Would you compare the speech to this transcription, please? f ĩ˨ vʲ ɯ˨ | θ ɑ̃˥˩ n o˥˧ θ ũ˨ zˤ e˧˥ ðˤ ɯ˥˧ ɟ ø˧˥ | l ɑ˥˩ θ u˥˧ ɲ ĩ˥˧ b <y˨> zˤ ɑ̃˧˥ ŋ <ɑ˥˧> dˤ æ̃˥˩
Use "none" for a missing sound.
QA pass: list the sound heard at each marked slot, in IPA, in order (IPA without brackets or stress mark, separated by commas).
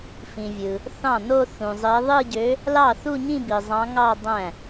i˨, ɑ˥˧